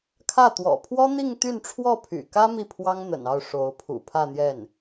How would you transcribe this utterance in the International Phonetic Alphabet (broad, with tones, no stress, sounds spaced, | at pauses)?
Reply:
kʰ ä˥˩ t̪ w ɔ̰˨˩ pʰ w ɔ˥ n̪ i˥˧ ŋ t̪ y˥˧ n ʈ͡ʂʰ w ɔ˥˩ pʰ y̰˨˩ k ä˥ m i˥˩ pʰ w ɑ˥ ŋ n̪ ə̰˨˩ n ɑ˥˩ ʊ̯ ʂ o˧˥ ʊ̯ pʰ ṵ˨˩ pʰ ä˥˧ n̪ j ɛ˥˩ n